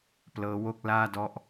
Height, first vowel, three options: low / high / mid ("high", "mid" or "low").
mid